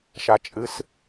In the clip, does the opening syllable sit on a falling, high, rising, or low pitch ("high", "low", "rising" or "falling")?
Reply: low